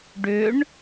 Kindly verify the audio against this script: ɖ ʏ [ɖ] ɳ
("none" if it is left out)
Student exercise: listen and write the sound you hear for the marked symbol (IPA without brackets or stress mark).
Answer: none